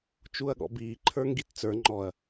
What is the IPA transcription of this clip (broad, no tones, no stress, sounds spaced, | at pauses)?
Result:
t͡ʃ u ɐ̯ ɠ ɔ̰ b iː ǃʰ ə˞ ŋ ɡ i t t͡s ə˞ ŋ͡ǃ ɔ ɐ̯